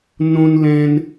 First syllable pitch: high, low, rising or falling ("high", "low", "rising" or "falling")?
high